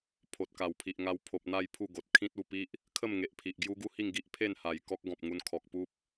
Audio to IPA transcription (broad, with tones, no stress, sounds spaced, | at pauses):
pʰ o˨ t̚ k a˨˩ w pʰ i˨ ʔ ŋ a˧ w pʰ o˨ p̚ n̪ a˥˧ j pʰ u˥˧ ɡ o˨ t̚ kʰ ĩ˦ t̚ u˨˩ p i˦ ʔ | kʰ ə˥˧ m ŋ e˨ ʔ pʰ i˨ ʔ ɡ j u˦ ɡ u˦ h i˥˧ ŋ ɡ i˦ ʔ pʰ e˥˧ n h a˨˩ j k ɔ˦ k̚ ɡ ɔ̃˨ p̚ ŋ u˧ n kʰ ɔ˨ k̚ p u˦ p̚